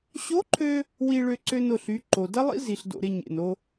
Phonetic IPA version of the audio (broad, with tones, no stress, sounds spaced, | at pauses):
ɕ o˧˥ ǃʰ ø˧ | w i˧ ɭ ø˧ ǀ ø˧ n ʊ˩ ɬ y˩˧ ǃ o˩ d ɐ˥ lˠ ḭ˥ z i˩ ɬ d o̰˩ ɾ ɪ˧ ɲ ḛ˩ n o˧